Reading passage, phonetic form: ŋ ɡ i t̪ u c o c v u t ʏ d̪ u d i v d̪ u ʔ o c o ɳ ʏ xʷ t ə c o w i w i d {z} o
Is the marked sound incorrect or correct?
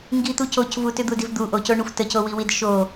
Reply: incorrect